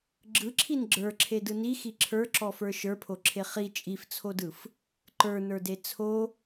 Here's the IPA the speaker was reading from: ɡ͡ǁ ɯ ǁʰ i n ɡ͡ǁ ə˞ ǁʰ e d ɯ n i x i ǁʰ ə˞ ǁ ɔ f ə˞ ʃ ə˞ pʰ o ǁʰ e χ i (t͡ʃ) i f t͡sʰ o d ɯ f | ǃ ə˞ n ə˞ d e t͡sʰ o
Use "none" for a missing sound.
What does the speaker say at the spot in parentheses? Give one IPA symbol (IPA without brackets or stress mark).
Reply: t͡ʃʼ